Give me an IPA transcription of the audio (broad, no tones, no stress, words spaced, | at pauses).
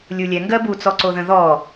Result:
lʲulʲɛŋɡɜ but͡sɔǀoðə̃ ðɔ